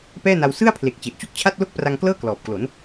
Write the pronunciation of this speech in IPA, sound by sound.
pɛː˥˩na˧w sɯ˥˩a̯pʰle˨˩k̚ t͡ɕe˨˩ʔt͡ɕu˥˩k̚t͡ɕʰa˥˩t̚ lo˥˩k̚pra˧ŋklɤː˥˩ klɔː˨˩p̚klo˩˦n

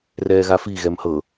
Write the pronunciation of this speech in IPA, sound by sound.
rɛːɣafi ɣɛmhɤ

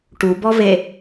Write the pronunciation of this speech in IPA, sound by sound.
ʈubɔve

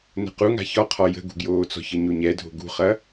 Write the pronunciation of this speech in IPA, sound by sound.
nə̤quŋa̤ çɒqʰɒ jə̤ɡṳɡjoːt͡sɔ̤ çəɲoɲɛdʱo̤ ɡṳχɐ

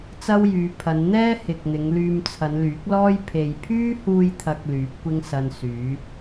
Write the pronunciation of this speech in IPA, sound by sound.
t͡sɐ˥wjyː˨˧pʰɐ˨˧n n̪ɛː˥ hɪ˨k̚n̪ɪ˨˧ŋ lyː˧mt͡sʰɐ˨˧nlyː˨˥k̚lɔː˥j pʰe˨jpʰyː˥huː˧jt̪ʰɐ˨k̚ lyː˨˥p̚kʷɪ˥ŋsɐ˧nsyː˨˥

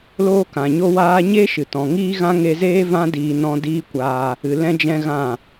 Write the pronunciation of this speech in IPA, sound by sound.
loː˦kã˨ɲo˦ waː˦ ɲeː˦ʃɨ˨ tɔ̃˨ŋiː˦ɣã˦ ŋe˧zeː˦ vã˦ diː˧nɔ̃˦ diː˦kʷaː˧ | ɨ˨ lɛ̃˦d͡ʒɛ̃˦ɣã˦˨

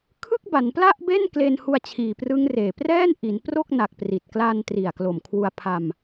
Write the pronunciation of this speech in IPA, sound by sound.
kʰɯ˥˩k̚ba˩˦npla˥˩ʔbe˥˩n kleː˧nhu˧a̯t͡ɕʰiː˨˩prɯ˦˥ŋ reː˨˩prɛː˥˩nʔi˩˦npro˥˩k̚ na˨˩k̚pri˨˩t̚kla˧n tri˨˩a̯klo˨˩mkʰwu˧a̯pʰa˧m

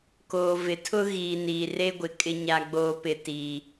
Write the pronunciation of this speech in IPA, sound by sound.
koː˨vɪ˨˦tʰʊ˦ ɣiː˨niː˨re˦ɡʷɪ˨ kʼɪ˦ɲa˦ɡ͡boː˦ pɪ˦tiː˦

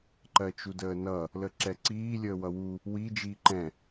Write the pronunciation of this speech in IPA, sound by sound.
ǃɜt͡ʃudəːnʌ | ləǁɛǀiː lʲəːwʌwu | wi d͡ʒiːǃɛ̃

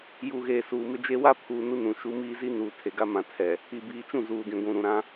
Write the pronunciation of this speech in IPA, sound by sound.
ju˨ɣeː˨suː˨ mɪ˨d͡ʒe˨ wa˦pʰuː˨ nu˦nũ˨ ʃu˨˦miː˦zi˦nuː˨ tʰe˨ɡa˦mã˨tʰɛ˨ | i˨biː˨t͡ʃũ˦˨ zuː˨dĩ˨ ɡʷũ˨ɾũ˨ɾã˦

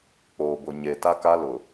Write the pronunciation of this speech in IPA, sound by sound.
k͡poː˨bʊ˨ ɲe˨ ta˦ka˦lʊ˨

